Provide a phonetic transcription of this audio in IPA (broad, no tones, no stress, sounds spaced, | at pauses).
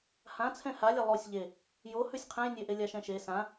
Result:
h ã t͡sʰ ɛ̃ h a lʲ a lˠ o sʲ ʎ e | j o h ʉ sʲ qʰ ɛ̃ j nʲ e ʔ e lʲ a ʃ ɛ̃ ʃ e s ã